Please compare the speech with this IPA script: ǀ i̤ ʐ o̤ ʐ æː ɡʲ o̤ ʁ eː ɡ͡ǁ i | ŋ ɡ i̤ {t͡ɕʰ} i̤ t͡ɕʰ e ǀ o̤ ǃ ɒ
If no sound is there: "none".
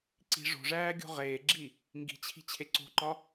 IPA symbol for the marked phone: t͡ɕʰ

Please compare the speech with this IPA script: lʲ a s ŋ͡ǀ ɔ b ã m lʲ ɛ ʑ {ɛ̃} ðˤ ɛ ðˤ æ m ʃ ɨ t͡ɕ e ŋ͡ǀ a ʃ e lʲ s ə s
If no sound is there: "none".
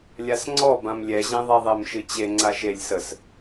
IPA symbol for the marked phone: ẽ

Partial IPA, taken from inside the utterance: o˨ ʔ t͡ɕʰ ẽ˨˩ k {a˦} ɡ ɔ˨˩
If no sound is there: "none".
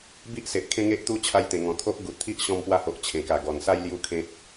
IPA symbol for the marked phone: a˨˩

